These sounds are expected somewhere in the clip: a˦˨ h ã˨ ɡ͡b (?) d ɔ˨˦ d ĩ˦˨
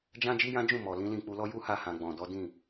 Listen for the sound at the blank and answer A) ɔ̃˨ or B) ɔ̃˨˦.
A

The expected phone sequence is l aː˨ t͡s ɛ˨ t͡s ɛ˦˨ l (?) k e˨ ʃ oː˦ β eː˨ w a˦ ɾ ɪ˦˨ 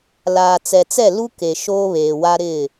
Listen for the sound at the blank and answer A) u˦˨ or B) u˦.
B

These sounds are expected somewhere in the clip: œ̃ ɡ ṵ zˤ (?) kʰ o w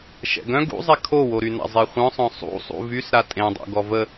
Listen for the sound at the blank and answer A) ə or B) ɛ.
B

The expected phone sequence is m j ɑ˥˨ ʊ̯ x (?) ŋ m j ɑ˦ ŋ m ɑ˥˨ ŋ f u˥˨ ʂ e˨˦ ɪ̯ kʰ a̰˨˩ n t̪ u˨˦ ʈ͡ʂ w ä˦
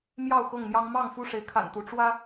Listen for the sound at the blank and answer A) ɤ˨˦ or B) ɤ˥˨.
B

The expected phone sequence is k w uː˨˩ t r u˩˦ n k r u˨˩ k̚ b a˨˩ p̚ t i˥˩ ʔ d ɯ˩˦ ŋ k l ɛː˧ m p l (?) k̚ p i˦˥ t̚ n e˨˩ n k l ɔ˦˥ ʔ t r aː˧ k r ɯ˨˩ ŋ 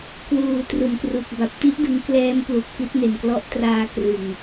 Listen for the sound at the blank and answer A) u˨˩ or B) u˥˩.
A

